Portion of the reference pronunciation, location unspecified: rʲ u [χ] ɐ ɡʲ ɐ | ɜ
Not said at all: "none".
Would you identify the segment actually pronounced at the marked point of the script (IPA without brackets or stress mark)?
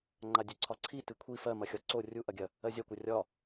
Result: ʔ